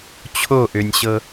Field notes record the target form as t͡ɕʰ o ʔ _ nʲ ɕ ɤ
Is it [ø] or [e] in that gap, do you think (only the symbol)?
ø